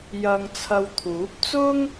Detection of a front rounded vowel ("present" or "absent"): absent